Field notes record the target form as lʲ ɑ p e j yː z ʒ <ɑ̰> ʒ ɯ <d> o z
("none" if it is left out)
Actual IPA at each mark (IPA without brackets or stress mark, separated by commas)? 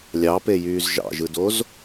ɑ̰, d